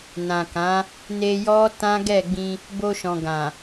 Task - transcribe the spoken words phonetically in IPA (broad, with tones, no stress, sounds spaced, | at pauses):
n ã˨ k ã˨˦ | n e˧ j ɔ˦ t ã˦ ɡ ɛ˦˨ ɡ͡b ĩ˧ | b o˧ ʃ ɔ̃˨ ɡ ã˨